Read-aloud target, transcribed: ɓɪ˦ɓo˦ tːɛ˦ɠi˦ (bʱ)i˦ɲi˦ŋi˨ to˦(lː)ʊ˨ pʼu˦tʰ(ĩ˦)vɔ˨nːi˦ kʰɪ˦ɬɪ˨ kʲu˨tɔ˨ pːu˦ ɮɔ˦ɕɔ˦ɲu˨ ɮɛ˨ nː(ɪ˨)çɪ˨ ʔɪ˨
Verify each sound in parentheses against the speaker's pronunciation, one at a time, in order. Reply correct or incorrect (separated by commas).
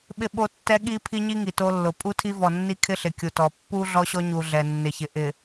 incorrect, correct, incorrect, correct